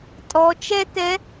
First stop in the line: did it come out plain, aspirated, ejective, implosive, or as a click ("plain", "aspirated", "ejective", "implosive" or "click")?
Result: ejective